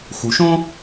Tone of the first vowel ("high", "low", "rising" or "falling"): low